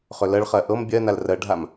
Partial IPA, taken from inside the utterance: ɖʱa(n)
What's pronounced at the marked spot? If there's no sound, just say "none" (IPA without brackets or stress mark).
m